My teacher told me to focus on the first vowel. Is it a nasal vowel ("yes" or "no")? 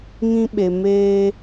yes